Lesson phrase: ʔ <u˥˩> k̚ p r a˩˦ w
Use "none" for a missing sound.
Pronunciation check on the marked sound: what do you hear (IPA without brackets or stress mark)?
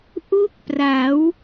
u˥˩